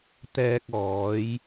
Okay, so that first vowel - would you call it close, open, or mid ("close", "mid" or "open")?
mid